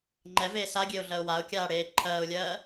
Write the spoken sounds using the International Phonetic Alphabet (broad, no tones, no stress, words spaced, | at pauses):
ŋ͡ǃɛveː saɡʲeʊ̯ɮɜʊ̯ waʊ̯kʲaːɽeː ǃʰɜːʊ̯lʲɜː